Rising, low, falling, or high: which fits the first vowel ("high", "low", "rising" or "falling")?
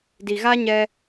low